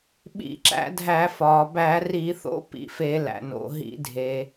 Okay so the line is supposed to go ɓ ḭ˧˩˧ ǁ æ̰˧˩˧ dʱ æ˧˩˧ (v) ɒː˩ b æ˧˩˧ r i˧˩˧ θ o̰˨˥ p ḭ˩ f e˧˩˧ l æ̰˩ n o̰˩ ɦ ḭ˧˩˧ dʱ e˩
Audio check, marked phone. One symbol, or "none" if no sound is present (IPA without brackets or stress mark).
f